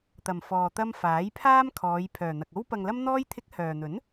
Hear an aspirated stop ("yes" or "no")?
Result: yes